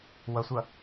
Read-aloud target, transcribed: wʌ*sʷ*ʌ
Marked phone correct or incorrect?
correct